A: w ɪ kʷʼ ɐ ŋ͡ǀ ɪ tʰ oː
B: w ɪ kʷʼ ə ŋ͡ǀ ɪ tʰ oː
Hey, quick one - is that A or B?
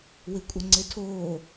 B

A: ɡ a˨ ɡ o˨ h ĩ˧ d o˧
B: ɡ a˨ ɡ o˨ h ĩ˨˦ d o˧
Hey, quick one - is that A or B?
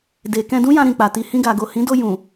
B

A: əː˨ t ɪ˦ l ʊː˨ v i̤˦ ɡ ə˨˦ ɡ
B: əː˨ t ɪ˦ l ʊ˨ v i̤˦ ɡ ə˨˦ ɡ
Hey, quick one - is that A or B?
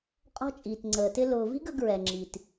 A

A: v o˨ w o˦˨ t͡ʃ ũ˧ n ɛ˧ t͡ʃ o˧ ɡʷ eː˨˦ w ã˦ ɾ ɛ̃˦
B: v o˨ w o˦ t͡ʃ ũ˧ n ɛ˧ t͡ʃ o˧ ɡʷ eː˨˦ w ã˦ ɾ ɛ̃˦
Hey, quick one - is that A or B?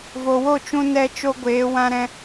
A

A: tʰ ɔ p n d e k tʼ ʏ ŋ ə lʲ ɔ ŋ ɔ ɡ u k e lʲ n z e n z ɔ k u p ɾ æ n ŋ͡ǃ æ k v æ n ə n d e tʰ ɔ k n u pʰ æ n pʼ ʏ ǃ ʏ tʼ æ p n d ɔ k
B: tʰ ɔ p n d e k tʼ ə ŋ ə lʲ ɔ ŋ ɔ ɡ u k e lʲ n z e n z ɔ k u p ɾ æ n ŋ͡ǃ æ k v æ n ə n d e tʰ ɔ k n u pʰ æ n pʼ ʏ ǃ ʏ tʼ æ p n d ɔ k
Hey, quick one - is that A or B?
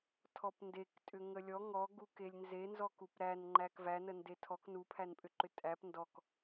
A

